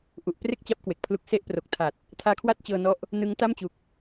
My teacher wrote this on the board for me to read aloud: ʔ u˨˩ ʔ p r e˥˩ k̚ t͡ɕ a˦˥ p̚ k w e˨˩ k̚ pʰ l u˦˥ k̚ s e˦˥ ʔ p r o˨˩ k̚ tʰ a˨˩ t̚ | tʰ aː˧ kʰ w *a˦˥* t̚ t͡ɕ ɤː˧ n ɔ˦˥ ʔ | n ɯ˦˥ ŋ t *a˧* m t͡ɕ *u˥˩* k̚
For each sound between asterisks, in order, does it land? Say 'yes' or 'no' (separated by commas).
no, no, no